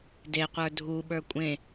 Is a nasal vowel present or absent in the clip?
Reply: present